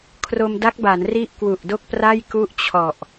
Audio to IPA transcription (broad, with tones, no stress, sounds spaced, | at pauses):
kʰ r o˧ m d a˦˥ k̚ b a˩˦ n r i˦˥ ʔ k w u˨˩ ʔ d o˥˩ k̚ p r a˥˩ j k u˥˩ ʔ t͡ɕʰ ɔ˨˩ ʔ